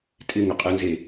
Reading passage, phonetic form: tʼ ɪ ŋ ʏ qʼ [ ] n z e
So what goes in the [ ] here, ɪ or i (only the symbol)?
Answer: ɪ